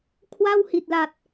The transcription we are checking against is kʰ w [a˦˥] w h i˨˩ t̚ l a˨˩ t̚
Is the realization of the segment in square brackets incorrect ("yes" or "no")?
yes